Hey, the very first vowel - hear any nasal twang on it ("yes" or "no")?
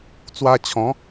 no